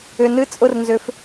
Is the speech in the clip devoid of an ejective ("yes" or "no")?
no